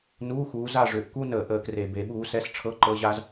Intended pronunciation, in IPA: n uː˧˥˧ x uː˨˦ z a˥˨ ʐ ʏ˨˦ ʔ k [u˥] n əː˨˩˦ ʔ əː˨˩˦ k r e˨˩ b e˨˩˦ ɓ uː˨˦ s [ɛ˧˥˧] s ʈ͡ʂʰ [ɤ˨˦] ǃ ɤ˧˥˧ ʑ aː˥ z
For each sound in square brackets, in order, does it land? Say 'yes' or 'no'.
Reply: yes, yes, no

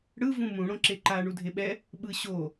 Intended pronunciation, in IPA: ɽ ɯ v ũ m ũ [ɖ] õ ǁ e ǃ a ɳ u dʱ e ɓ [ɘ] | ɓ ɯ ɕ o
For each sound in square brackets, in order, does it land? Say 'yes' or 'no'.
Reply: no, no

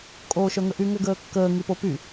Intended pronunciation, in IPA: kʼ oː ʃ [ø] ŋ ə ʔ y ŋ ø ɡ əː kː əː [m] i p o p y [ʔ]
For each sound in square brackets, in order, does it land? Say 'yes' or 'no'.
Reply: no, no, no

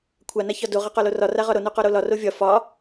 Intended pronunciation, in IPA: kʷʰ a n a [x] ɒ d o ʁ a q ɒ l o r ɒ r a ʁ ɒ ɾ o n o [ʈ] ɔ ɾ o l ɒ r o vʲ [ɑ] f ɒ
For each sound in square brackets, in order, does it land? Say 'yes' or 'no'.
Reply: no, no, no

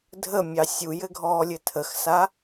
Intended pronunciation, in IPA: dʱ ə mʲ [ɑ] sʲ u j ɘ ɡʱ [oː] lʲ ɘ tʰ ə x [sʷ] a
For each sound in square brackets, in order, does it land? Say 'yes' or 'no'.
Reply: yes, no, no

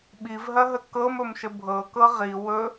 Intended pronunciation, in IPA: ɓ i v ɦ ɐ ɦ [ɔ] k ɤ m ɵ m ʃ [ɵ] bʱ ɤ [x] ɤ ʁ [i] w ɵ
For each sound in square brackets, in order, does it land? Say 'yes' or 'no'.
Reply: no, no, no, yes

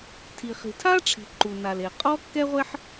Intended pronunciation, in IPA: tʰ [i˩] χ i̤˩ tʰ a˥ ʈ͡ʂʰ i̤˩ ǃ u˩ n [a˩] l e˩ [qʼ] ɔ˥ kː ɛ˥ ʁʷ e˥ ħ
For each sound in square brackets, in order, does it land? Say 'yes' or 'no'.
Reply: yes, yes, yes

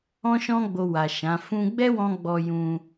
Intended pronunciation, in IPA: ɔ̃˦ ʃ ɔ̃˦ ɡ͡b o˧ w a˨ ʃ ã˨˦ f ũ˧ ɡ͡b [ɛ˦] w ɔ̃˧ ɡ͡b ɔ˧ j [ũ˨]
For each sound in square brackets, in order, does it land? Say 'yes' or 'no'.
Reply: yes, no

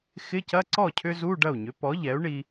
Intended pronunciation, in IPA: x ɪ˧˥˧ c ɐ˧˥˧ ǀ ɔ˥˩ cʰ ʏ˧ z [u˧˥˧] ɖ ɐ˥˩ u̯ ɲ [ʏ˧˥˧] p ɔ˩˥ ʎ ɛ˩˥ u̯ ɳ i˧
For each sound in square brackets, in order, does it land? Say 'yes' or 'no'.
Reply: yes, no

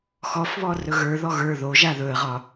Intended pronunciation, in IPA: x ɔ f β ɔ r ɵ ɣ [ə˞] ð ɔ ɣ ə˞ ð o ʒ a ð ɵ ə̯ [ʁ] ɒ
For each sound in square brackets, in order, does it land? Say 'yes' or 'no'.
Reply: yes, yes

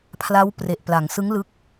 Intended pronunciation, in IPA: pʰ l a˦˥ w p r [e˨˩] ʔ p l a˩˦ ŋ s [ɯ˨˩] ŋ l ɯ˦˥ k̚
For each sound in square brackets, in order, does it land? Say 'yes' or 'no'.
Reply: yes, no

